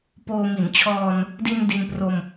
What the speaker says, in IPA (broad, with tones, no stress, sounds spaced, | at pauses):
p oː˧ m i˩˦ n t͡ɕʰ ɔː˧ n | d i˧ n d i˧ n p r o˧ m